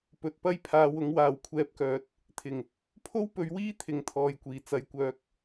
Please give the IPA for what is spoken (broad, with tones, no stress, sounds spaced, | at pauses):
p ɵ˨ t̚ p ɐ˥ j pʰ aː˨˧ w ʊ˨˥ ŋ w aː˨ w kʷʰ ɛː˧ p̚ k œː˨˥ t̚ | t̪ʰ ɪ˨˩ ŋ | pʰ o˥ w p ɵ˨˥ ɥ w iː˥ t̪ʰ ɪ˨˧ ŋ t̪ʰ ɔː˨ j kʷ iː˨˩ t͡s ɐ˨˥ j kʷ œː˨˥ k̚